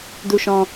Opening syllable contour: high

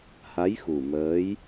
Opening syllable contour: rising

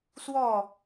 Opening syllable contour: falling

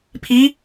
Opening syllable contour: rising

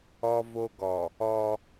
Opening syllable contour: high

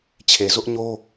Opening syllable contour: low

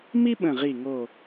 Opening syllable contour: high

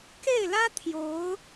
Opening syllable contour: falling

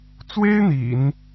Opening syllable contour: high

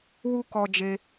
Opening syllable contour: high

